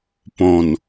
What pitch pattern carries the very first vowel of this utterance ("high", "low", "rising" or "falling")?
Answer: low